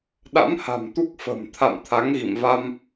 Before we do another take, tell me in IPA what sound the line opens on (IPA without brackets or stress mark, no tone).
ɗ